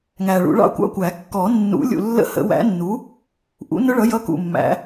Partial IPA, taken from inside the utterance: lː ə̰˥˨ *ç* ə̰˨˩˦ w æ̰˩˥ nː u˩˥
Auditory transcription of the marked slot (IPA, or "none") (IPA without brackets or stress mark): h